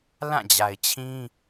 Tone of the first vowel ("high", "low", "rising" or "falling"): falling